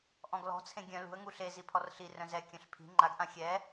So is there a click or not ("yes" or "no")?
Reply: yes